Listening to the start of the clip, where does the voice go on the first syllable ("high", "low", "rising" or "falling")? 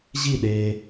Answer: falling